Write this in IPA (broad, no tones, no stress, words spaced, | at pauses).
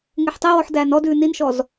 ŋeħtˤɛwɔħ dæːnɔdʉː ninʃɔz